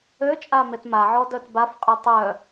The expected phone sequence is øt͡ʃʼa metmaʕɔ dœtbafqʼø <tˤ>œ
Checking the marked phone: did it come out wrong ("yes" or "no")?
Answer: no